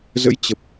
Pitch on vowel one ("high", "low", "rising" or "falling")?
rising